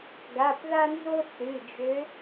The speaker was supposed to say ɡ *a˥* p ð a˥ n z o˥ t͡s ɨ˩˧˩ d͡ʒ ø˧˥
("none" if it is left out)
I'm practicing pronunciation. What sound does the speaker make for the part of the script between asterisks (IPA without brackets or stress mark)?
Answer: a˩˧˩